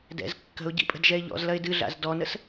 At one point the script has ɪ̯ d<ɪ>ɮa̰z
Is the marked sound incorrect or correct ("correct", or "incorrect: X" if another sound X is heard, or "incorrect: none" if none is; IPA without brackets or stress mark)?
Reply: incorrect: ɨ